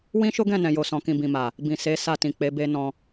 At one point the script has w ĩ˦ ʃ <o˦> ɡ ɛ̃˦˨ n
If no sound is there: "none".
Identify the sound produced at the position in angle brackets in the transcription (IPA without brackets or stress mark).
o˦